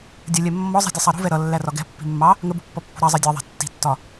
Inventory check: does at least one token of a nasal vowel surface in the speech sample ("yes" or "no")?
no